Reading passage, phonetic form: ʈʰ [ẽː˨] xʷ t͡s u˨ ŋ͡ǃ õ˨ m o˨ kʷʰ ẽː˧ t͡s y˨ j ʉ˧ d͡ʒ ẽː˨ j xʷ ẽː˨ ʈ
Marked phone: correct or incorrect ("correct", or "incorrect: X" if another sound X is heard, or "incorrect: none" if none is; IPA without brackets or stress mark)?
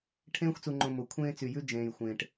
incorrect: ẽː˧